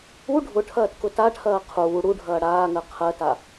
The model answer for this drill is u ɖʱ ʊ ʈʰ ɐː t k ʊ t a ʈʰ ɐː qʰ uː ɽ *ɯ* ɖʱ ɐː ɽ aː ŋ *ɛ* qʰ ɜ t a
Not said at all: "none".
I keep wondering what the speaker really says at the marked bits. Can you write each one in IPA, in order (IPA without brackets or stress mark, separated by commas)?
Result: u, ɜ